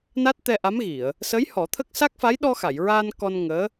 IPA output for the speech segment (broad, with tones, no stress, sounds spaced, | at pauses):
n a˦˥ t̚ t̪ ɛ˧ ʔ a˧˥ m ɣ i˨˩˨ ə̯ | s ə˧˥ j h ɔ˨˩˦ t̪ʰ ə˦˥ k̚ s a˦˥ k̚ f a˧˥ j ɗ ɔ˧ x a˨˩˨ j ɹ aː˧ n k ɔ˧ n ŋ əː˧˥